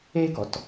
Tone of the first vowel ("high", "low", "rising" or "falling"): high